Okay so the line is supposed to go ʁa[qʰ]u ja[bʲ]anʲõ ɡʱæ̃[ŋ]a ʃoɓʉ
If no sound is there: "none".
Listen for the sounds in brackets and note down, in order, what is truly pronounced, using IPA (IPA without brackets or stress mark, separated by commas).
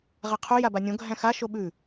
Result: qʰ, b, x